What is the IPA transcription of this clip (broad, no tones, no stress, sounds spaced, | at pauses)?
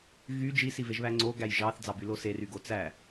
ɣ y d͡ʒ i s i v e ʒ β æ ŋ͡ǀ o ɡ æ j ʒ ɑ θ d͡z ɑ b y l o s e r y ɡ o t͡s æ